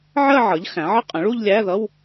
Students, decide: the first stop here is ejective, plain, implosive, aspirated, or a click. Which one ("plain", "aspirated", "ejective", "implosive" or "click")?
ejective